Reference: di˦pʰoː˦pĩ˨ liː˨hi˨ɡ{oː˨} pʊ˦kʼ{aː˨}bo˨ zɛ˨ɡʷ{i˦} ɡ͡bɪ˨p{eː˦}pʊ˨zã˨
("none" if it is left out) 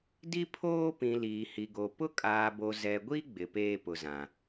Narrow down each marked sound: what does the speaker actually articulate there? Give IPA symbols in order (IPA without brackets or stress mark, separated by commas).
o˨, aː˨, i˦, eː˦